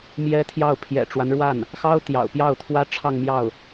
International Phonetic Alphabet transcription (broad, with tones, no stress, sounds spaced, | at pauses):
m j ɛ˥ t̪ʰ j ɑ˥˩ ʊ̯ pʰ j ɛ̰˨˩ ʈ͡ʂ w a˦ n ɻ w a˥˩ n | x ɑ˥ ʊ̯ t̪ j ɑ̰˨˩ ʊ̯ p j ɑ˥˩ ʊ̯ t̪ʰ w ä˥ ʈ͡ʂʰ ɑ˥˧ ŋ m j ɑ˥˩ ʊ̯